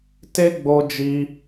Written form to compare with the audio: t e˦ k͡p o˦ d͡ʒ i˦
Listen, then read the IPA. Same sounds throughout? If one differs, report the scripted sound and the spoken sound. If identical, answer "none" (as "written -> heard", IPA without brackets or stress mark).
k͡p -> ɡ͡b